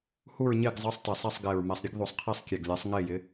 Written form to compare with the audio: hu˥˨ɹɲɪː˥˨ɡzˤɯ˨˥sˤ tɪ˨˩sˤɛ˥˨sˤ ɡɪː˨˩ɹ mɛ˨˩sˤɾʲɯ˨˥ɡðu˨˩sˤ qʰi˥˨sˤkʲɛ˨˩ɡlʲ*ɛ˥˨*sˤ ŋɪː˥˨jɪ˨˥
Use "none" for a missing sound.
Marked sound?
ɛ˨˥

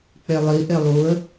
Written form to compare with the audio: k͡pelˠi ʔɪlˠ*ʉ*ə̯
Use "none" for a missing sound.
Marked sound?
u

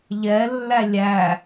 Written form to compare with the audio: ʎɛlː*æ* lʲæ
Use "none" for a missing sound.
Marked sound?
æ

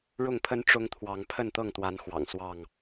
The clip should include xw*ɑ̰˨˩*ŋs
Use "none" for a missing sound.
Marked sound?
ɑ̰˨˩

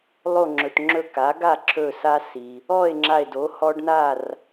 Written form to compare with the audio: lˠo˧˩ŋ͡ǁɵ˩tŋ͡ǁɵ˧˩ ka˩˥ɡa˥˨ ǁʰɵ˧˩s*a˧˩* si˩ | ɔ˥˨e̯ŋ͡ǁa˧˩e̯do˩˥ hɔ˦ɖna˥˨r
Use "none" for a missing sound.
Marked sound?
a˦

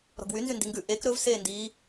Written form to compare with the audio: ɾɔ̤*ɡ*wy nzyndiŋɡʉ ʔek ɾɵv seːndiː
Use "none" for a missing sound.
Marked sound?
ɡ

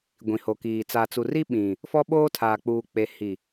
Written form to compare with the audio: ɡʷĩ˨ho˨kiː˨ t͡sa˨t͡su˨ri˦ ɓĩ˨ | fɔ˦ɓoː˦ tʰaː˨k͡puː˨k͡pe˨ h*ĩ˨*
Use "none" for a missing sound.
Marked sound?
i˨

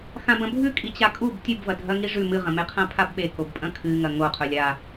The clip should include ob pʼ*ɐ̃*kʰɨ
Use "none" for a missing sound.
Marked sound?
ɐ̃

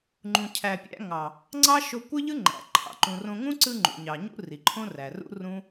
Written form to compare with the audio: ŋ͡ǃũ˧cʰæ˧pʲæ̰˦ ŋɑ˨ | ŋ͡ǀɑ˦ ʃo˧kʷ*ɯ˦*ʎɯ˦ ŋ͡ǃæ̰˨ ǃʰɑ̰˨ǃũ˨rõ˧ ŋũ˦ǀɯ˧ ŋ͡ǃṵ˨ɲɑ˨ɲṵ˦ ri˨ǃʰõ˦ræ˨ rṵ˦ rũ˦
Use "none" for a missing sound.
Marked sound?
ɯ˦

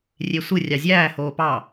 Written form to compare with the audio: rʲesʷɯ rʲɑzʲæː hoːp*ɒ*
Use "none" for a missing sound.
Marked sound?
ɑ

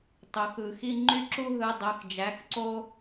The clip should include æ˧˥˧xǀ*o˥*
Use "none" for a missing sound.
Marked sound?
o˥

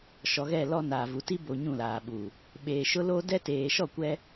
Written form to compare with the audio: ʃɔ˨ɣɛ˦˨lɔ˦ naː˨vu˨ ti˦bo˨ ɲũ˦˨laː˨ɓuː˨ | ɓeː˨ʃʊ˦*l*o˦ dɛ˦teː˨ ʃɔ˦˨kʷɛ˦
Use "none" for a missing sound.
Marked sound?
l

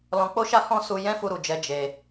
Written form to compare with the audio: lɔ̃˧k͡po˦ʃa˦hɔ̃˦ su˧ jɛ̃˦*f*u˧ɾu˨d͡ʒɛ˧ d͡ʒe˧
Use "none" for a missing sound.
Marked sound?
f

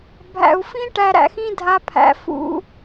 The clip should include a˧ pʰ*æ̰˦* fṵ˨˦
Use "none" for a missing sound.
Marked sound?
æ̰˨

